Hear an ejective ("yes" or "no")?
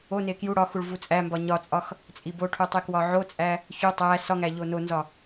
yes